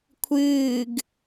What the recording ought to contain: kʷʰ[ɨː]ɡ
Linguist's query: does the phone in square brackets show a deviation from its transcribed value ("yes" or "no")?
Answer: no